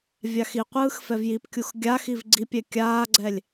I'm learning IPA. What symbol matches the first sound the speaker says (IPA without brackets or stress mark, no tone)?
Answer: vʲ